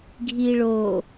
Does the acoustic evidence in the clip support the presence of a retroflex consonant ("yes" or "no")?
yes